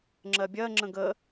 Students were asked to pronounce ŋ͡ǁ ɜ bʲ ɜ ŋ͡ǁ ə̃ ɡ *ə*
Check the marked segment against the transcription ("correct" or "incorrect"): correct